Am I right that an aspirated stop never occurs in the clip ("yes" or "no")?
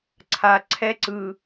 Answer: no